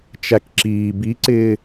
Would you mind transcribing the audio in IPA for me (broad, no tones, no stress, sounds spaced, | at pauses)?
t͡ʃ æ k ǁ iː b i ǀ ɪː